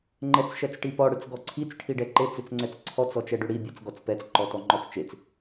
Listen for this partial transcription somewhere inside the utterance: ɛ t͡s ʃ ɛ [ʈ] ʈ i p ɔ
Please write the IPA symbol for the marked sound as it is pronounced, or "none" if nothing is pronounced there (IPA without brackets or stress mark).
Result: t͡s